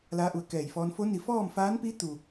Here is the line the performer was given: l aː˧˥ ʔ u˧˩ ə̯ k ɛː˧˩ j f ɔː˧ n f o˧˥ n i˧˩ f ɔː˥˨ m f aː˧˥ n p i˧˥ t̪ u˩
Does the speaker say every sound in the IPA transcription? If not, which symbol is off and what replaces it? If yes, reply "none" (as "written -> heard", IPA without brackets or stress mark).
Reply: none